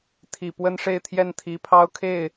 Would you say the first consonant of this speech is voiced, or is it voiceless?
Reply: voiceless